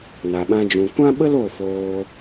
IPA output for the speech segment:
na˨ɓã˧d͡ʒũ˨ kʷã˦ɓə˦l o˦˨foː˧

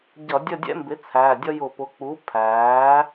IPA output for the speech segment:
ɟʌ˧˩˧dʲə˦˨dʲɛ̰˦mbɪ˩˥ t͡sʰæ˩˧˩dʲʌ˦jʊ˧˩˧ pʊ˩˥k͡pu˩˥ pʰæː˩˥

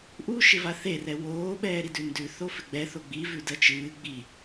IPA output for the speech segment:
ʔuʃɪva θerɛ woːɓɛːɾidʉ ndʉθofɪ ɡ͡bɛθo ɡ͡bivʉdɜ t͡ʃɨː ɡ͡bi

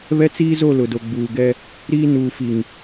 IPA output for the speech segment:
βɛ˦t͡siː˦zo˦˨ lʊ˨do˨ɡ͡buː˨ ɡɛ˦ | ɾiː˦ nuː˨fi˨ŋ

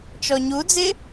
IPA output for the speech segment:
t͡ʃɔɲud͡zɪ

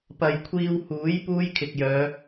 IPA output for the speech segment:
pɐ˨j kʷʰiː˧whuː˨˥j puː˥jkʰɪ˨k̚jœː˨˧

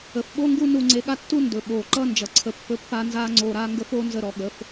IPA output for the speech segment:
ə˨fɓo˦ŋɡu˦ nu˧ŋ͡ǀe˧ɠa˦tːu˦ ndɵ˨ɓoː˨ǃʌ˦ nd͡ʒʌ˨ǀʰə˧ pːɵ˧pːa˧nzaː˧ ŋ͡ǀoː˧ɾaː˦ŋɡə˦ foː˦nzə˦˨ɾɔ˧ ɠə˨˦f

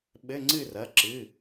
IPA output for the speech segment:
ɓɘ˧˥˧ŋ͡ǀɨ˥˨rɐ˩˧˩ ǁɨ˩˧˩

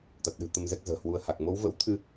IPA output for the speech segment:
t̪a˨˩t̚ɗɨ̤˨˩ t̪ə˧mzɛ˦˥k̚ zə̤ː˨˩hwu˨˦ə̯ha˨˩k̚ mo˨˦wvə̰˧˥wt̪ʰɨ˧

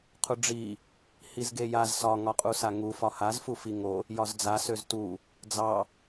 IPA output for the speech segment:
qʰuɖ͡ʐi | hizɡejaz sɒ ŋɒqʼusaŋu fɒhaz fufiŋo | jɒzd͡za søztu | d͡zɑ

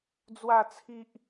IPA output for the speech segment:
d͡zwa˥˧t͡sʰi˦ʔ

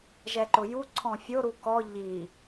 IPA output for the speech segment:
ʒɛǃʊju ǀʰɔ̃fʲo ɾukɔ ʎi

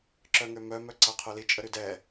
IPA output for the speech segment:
ǁœŋømœ mœǀaqʰœli t͡ʃʼəɾydɛ

